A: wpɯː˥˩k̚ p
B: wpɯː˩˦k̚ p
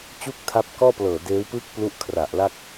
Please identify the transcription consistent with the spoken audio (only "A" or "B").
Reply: A